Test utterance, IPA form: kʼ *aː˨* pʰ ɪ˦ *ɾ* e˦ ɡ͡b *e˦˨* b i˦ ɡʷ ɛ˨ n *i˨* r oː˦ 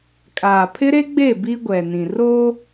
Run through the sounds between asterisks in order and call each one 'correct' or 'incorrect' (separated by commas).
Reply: correct, correct, correct, incorrect